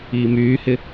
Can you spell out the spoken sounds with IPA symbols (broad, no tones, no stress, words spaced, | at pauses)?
iːmyːhɪ